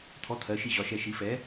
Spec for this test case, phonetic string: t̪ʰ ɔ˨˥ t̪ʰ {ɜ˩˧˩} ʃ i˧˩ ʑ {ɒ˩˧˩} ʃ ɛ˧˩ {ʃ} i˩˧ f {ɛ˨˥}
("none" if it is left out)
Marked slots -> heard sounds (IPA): ɜ˩˧˩, ɒ˩˧˩, ʃ, ɛ˨˥

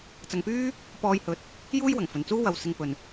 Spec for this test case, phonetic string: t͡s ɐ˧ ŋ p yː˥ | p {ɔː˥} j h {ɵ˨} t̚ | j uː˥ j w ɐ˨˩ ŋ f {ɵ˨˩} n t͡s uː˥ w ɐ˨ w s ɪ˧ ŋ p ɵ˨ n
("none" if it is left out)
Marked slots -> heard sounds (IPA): ɔː˧, ɵ˨, ɵ˨

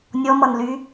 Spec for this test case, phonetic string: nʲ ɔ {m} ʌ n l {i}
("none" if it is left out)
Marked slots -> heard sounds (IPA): m, y

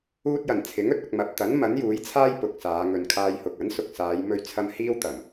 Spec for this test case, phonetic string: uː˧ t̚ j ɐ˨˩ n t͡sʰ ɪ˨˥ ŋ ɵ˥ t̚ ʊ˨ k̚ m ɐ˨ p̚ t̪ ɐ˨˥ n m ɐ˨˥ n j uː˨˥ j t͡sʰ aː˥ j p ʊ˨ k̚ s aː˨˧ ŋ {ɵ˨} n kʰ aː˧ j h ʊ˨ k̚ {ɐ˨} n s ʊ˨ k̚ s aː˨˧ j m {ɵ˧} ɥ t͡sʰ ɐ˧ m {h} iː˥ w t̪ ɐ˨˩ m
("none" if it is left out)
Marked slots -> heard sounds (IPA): ɵ˨, ɐ˨˥, ɵ˧, h

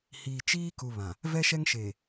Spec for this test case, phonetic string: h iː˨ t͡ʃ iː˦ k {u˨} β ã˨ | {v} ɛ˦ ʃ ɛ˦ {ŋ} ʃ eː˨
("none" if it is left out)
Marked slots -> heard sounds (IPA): u˨, v, ŋ

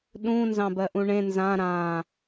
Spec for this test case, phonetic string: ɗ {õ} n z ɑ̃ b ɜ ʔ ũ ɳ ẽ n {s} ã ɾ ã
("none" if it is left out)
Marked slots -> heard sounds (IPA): ũ, z

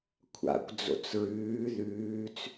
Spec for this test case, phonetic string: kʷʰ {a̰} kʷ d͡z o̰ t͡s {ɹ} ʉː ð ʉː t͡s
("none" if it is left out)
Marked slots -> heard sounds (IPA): a̰, ɹ

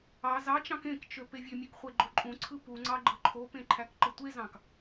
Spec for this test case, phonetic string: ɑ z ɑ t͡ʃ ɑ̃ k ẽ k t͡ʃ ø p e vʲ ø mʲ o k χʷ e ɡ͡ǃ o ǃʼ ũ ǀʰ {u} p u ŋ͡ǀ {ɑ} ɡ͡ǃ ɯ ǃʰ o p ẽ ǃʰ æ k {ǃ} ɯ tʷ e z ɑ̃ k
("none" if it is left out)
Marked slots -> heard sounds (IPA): ɯ, ɑ, ǃ

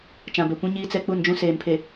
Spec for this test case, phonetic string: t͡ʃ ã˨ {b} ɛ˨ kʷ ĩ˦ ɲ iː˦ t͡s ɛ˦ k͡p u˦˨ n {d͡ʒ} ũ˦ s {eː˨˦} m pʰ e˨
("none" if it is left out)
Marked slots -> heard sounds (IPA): b, d͡ʒ, eː˨

